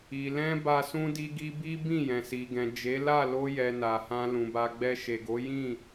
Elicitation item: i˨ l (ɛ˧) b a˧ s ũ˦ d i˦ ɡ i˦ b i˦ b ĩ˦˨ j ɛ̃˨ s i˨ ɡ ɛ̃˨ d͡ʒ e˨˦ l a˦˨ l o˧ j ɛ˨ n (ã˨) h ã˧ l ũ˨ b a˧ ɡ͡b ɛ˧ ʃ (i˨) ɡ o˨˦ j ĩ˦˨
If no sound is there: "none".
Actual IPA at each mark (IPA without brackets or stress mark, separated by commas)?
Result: ɛ̃˧, a˨, e˨